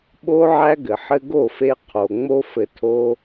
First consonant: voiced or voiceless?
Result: voiced